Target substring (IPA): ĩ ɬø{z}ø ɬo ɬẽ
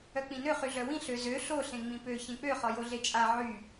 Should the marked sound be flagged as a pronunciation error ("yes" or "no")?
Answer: no